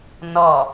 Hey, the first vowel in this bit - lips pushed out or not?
yes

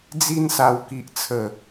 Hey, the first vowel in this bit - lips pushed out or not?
no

